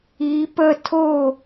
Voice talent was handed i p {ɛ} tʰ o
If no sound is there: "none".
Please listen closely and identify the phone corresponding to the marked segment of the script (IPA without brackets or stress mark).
ə